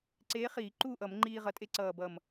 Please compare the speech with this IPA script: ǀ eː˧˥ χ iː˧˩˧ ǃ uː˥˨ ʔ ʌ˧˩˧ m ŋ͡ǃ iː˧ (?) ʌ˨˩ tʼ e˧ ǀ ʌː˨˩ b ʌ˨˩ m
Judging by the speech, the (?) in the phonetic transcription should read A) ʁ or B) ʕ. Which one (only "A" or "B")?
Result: A